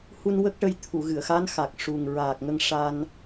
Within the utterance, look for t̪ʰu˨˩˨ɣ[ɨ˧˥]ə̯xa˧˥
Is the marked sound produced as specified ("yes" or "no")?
no